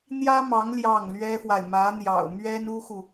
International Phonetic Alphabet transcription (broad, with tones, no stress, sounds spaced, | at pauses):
n̪ j ä˥ m ɑ˧˥ ŋ l j ɑ˥˩ ŋ l ɥ ɛ˥ f w a˨ ɪ̯ m ä˧˥ n̪ j ɑ̰˨˩ ʊ̯ m ɥ ɛ˥ n u˥ x u˨